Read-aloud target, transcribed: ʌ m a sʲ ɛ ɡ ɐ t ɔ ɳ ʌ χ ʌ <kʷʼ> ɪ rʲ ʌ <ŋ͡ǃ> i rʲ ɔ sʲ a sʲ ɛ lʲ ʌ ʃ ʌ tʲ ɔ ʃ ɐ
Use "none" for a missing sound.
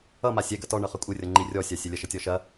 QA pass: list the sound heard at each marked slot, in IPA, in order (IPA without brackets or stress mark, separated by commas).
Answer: kʷʼ, ŋ͡ǃ